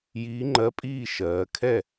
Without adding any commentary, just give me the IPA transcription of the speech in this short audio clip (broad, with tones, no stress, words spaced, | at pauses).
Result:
jiː˧˥ŋ͡ǃɜ˧˥pʼiː˥˨ ʃɜː˩˧kʰɛ˥˨